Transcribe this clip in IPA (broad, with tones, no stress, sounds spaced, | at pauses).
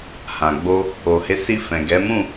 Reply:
h ã˨ ɡ͡b o˧ | o˨ h e˨˦ s i˧ f ɛ̃˨ ɡ ɛ˨˦ m ũ˦˨